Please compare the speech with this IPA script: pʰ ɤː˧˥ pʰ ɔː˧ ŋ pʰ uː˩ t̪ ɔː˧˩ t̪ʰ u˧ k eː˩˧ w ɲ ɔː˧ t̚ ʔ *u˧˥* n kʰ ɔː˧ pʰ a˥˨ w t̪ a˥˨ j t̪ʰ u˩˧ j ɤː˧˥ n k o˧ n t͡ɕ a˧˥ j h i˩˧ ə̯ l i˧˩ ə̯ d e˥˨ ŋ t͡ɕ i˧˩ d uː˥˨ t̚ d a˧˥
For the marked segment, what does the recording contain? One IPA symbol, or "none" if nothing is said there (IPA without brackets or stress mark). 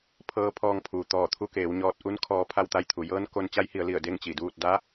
u˧˥